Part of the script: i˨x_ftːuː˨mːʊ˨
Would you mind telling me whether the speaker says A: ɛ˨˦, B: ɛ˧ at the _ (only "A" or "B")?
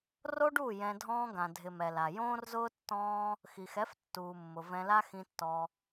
A